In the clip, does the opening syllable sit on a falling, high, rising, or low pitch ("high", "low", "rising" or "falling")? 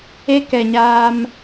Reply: high